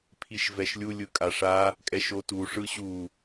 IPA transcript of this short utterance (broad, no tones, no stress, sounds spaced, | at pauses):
pʰ i ʃ v ɛ ʃ lʲ u lʲ ɯ kʼ a ʂ a | kʼ ɛ ʃ o t u ʂ ɯ ɕ u